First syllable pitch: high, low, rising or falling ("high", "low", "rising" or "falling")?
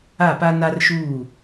falling